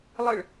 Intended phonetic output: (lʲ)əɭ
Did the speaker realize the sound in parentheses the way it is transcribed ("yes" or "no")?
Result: no